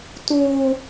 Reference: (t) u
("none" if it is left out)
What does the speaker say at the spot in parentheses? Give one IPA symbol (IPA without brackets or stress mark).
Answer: t